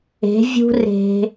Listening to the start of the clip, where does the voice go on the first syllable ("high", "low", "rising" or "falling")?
rising